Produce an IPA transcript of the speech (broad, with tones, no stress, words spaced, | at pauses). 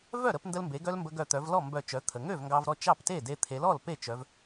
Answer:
vœ˥˩ ɾə˧pndə˧lmbe˩˧ɡœ˧l mbə˧ɡœ˧˩ t̪œ˩˧vlɔ˥˩ mbœ˧˩ t͡ʃœ˩˧t̪ʰə˩ŋø˥˩v ŋɡɑ˧vɾɔ˥˩ t͡ʃɑ˥˩pte˥˩de˧ t̪ʰe˩˧lɔ˥˩l pe˥˩t͡ʃœ˩˧v